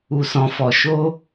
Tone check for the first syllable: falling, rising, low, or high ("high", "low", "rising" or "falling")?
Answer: low